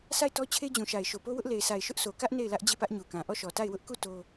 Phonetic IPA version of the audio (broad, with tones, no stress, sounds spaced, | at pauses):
s a˦˨ ɪ̯ t ɔ˦ t͡ɕʰ e˦ d͡ʑ ũ˨ ʃ a˨ ɪ̯ ʃ o˨ p o˦ w ʊ˦ ʔ l e˨ ɪ̯ s a˨ ɪ̯ ʃ ʊ˦ ʔ s o˨ k ä˦ ʔ n e˦˨ ɪ̯ l ä˦ ʔ d͡ʑ e˦˨ p ä˦ ʔ ɲ u˨ k ã˨ ʔ ɔ˦˨ ʃ ɔ˨ t a˦˨ ɪ̯ w ʊ˦ ʔ k u˦˨ t o˦